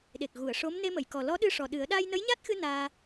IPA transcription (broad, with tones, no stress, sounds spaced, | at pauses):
ɗ e˨˩ k̚ ɣ u˨˩˨ ə̯ ʂ o˧˥ m n e˧ m ə˨˩˨ j k ɔ˨˩ l ɔ˧˥ ɗ ɨ˧ ʂ ɔ˨˩ ɗ ɨ˨˩˦ ə̯ ɗ a˧ j n ə˧˥ j ɲ a˦˥ t̚ x ɨ˧ n aː˧